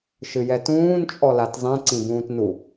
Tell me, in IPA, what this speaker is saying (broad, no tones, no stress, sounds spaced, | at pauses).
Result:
ʃ ɨ j ɛ t ũː n t͡ʃʼ ɔ l a t zˤ ĩ ǀ ĩ b ũː t n u